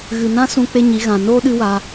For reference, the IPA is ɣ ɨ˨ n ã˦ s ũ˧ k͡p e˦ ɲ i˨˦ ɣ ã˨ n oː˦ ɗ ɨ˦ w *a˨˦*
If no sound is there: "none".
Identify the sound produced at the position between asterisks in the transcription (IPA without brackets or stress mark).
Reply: a˧